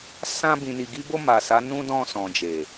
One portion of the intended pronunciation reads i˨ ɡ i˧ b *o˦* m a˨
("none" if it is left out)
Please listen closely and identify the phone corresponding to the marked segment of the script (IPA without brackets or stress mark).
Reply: o˧